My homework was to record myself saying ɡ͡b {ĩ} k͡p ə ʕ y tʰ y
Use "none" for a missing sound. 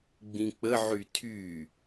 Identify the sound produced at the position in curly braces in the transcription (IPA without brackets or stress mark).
ĩ